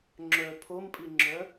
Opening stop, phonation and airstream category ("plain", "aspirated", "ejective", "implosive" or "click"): click